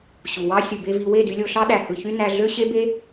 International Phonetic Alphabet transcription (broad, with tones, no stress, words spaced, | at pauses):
ɕu˨wɑ˦ sʲu˨be˧ vi˨ we˦˨dy˧lʲo˧ɬɑ˦ ɗæ˨hɯ˨çy˧ næ˧ɮø˦ ɕe˦be˦